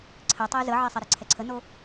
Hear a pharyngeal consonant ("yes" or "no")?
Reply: yes